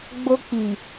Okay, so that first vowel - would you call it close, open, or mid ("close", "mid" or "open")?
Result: mid